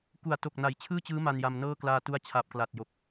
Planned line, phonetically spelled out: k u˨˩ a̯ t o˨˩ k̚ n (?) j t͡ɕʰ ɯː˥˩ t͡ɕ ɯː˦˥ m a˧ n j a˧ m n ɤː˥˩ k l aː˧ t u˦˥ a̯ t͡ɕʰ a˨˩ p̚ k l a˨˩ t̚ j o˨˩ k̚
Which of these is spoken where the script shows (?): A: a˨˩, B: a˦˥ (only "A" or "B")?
A